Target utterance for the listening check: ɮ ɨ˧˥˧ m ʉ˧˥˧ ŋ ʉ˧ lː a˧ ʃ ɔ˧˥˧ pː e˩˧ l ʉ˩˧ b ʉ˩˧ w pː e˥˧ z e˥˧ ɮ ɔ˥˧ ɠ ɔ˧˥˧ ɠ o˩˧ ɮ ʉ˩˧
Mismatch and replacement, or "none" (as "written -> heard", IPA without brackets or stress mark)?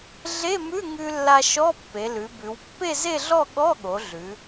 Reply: ɨ˧˥˧ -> e˧˥˧